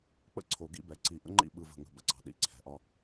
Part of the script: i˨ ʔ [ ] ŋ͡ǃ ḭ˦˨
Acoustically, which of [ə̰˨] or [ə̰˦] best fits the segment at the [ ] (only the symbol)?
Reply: ə̰˦